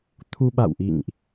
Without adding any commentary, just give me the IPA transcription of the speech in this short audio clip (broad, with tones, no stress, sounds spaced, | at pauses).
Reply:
t̪ʰ u˧ ɓ a̰˧˨ w ʔ ḭ˧˨ ŋ ʔ